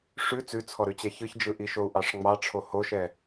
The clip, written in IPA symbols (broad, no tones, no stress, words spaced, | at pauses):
ʂʉ t͡sʉt͡sʰɔɾʉt͡ɕɛ çɯçd͡ʒɯʔiʃou̯ ʔɑʂŋ͡mɑʈ͡ʂʰo hoʃɛ